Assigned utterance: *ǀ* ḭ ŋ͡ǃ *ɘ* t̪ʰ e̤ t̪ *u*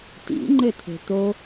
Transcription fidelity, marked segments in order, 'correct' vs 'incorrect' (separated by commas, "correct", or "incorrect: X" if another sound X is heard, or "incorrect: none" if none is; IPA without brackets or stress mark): incorrect: t, correct, incorrect: o